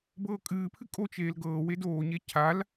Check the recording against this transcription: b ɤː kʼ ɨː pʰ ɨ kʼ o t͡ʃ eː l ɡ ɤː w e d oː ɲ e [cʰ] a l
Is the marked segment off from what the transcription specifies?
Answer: no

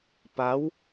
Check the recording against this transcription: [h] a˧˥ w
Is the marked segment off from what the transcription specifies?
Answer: yes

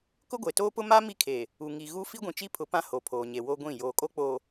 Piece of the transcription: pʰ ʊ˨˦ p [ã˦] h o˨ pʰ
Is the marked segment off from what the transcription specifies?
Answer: no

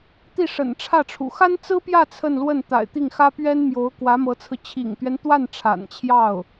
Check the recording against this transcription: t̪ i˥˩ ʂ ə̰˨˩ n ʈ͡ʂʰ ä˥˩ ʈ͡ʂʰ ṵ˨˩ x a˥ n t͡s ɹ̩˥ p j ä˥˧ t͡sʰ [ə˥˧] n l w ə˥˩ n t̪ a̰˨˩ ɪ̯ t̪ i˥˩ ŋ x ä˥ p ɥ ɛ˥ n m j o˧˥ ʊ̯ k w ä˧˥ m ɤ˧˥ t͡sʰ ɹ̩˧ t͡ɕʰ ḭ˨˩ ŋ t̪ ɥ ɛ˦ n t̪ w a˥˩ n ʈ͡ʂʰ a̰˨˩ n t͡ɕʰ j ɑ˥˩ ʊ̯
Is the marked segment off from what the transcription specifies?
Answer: no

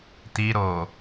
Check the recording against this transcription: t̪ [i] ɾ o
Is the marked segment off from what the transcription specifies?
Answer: no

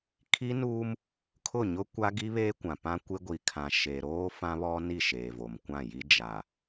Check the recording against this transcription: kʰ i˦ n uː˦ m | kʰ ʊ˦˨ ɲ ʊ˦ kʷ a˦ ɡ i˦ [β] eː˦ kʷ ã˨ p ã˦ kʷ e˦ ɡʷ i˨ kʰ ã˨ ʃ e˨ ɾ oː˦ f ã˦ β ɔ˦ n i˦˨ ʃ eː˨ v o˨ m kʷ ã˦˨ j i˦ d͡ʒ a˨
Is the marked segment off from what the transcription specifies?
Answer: no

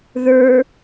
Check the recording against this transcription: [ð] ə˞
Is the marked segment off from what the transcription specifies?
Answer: no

